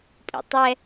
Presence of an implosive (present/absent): absent